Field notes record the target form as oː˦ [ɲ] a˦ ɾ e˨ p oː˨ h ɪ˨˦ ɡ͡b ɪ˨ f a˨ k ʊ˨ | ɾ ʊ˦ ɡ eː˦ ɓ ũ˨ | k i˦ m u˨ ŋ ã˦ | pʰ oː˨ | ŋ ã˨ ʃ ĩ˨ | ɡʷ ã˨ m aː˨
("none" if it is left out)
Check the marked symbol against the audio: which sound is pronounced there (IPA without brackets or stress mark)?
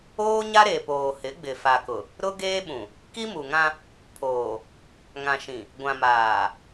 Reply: ɲ